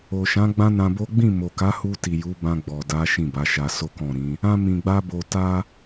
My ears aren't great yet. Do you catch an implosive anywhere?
no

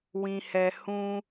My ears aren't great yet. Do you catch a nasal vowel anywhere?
yes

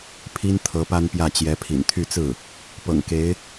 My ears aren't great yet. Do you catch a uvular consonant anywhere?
no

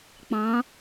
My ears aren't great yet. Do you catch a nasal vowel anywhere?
yes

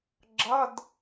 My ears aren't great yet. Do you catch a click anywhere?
yes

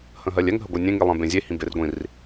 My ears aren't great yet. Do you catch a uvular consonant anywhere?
no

